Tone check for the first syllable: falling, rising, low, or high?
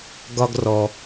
high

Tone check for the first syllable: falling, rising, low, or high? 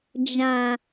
low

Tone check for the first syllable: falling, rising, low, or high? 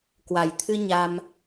low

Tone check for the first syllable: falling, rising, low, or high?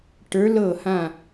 rising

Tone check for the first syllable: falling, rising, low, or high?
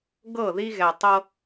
falling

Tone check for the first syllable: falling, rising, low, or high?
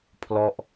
falling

